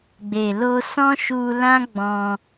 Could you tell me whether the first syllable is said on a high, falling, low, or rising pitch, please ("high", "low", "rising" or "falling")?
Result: low